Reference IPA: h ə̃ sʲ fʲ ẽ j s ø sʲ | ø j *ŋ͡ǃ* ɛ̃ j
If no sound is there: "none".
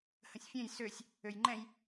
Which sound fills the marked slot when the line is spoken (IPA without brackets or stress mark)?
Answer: ŋ͡ǃ